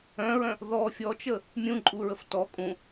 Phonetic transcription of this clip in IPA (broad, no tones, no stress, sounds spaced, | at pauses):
œ̃ ɹ œ̃ | ð ɔ fʲ ɔ t͡ʃ ə | mʲ ũ ǃʼ u ɹ ə f t ɔ kʼ ũ